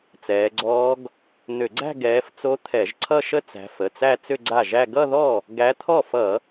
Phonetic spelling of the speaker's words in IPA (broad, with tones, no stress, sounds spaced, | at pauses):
t͡s ɛː˨˦ ɡ͡ǀ ɔː˦˥ ɡ | n̪ ʏ˧˩˧ ɡ͡ǀ æ̤˥˧ ɡ ɛː˨˦ f t͡s o˦˥ t̪ʰ ɛ˧˩˧ ʒ ǀʰ ʌ˥˧ ʃ ə˥˧ t͡s æ̤˨˦ f ə˩˧˩ t͡s æ˥˧ t͡s ʏ˥˧ ɡ͡ǀ a˥˩ ʒ æ˥˧ ɡ ʌ˥˧ ð ɔ˥˩ | ɡ æ˨˦ t̪ʰ ɔ˥˩ f ʌ˧˩˧